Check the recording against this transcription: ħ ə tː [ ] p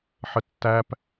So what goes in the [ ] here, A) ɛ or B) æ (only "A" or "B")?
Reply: B